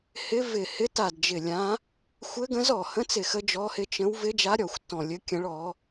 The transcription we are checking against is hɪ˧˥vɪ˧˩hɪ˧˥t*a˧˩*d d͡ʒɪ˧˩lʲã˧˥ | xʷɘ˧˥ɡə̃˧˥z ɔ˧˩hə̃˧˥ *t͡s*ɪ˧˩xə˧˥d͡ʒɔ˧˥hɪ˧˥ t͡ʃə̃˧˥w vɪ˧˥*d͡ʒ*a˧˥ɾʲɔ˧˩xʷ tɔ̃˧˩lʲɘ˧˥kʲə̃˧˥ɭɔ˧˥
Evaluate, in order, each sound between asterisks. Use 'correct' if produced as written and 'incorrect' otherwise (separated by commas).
correct, correct, correct